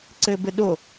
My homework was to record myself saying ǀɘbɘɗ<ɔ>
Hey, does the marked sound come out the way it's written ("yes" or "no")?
no